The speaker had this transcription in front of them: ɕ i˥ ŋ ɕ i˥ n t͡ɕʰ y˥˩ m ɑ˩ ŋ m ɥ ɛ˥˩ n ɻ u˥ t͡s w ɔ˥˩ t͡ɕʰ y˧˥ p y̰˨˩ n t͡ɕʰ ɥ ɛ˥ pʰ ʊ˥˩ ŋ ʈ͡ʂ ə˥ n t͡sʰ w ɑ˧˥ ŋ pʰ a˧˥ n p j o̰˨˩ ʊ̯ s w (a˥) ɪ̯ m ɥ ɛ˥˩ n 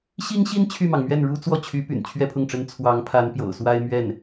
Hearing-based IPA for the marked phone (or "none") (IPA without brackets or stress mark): a˥